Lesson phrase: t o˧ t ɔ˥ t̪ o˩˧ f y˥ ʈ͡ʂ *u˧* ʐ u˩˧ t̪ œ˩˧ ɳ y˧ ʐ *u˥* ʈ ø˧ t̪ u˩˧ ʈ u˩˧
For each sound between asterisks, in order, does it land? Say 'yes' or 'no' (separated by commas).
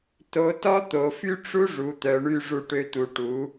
no, no